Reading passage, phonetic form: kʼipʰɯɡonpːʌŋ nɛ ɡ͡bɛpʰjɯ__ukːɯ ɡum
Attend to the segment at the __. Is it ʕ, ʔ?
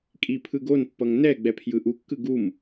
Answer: ʔ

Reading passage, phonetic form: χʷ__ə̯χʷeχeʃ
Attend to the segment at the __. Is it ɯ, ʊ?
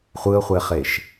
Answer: ɯ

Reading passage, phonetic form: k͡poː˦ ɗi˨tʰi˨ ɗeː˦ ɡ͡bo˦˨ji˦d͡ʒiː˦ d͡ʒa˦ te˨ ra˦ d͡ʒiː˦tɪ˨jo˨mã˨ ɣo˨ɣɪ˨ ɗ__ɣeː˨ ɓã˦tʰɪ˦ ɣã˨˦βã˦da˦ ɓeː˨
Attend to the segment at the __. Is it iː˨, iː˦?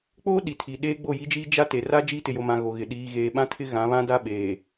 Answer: iː˨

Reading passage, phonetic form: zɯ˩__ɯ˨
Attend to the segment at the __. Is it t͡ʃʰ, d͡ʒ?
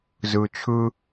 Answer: t͡ʃʰ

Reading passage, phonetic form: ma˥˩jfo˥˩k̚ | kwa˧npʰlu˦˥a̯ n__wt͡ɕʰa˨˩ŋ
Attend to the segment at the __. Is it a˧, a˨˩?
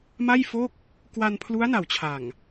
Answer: a˨˩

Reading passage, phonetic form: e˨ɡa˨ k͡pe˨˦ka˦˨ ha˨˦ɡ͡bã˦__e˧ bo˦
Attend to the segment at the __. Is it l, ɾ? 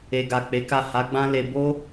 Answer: l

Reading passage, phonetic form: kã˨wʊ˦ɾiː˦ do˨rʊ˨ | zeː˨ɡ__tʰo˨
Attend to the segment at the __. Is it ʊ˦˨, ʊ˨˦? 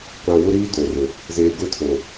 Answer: ʊ˦˨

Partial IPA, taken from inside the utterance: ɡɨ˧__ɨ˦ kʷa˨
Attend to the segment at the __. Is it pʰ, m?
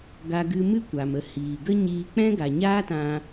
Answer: m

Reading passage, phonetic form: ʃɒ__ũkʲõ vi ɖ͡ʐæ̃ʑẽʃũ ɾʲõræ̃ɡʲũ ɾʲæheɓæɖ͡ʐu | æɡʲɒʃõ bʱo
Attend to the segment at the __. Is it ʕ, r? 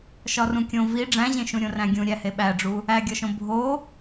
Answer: r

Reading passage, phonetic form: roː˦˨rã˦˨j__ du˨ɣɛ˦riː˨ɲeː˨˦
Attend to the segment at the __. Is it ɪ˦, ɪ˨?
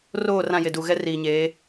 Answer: ɪ˨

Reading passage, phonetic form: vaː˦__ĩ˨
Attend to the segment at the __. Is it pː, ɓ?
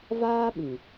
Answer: ɓ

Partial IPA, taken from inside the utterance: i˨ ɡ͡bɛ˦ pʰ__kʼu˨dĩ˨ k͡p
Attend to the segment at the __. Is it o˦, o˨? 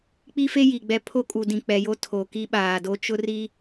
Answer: o˦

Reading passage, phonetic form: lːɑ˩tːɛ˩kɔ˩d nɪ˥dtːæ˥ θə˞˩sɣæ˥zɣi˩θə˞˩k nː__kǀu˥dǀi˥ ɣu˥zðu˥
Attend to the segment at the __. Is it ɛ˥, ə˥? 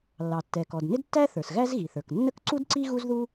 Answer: ə˥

